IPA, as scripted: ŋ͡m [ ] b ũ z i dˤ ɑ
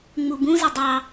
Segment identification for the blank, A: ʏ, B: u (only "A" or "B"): B